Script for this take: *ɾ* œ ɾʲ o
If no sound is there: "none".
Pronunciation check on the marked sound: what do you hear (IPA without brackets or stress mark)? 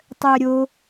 tˤ